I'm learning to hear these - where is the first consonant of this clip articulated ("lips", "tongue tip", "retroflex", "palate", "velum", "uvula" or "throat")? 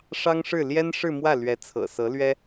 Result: retroflex